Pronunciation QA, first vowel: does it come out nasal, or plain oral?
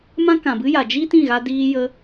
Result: nasal